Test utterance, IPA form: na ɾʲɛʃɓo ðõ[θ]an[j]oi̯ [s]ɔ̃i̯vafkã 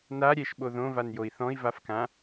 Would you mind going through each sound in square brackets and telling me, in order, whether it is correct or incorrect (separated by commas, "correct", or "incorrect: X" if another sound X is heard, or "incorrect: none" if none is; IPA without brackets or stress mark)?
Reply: incorrect: v, correct, incorrect: θ